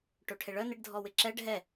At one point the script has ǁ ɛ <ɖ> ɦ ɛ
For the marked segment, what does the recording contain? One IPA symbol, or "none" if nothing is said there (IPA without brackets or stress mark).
ɖ